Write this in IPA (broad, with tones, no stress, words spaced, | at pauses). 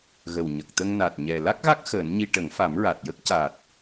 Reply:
ɣə˨˩wɲə˨˩k̚t̪ə˧ŋ na˨˩t̚ ɲɛ˨˩ la˦˥k̚ɣa˦˥k̚ xəː˨˩˦nɲi˧ ʈə˨˩˦ŋfa˨˩˦mɹa˨˩t̚jə˦˥k̚ ca˨˩t̚